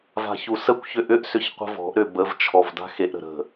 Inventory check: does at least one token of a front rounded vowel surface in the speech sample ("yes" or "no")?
yes